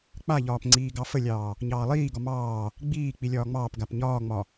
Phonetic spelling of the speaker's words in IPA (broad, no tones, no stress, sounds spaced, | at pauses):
k͡p a ʎ ɒː p ŋ͡ǀ iː ɡ ɑ f ə lʲ ɑː | ɲ ɑː lˠ iː ɡ ɒ m ɑː | ɡ͡b iː k͡p i lʲ ɒː ŋ͡m ɑː p ɡ a p ɲ ɒː ŋ͡m ɒ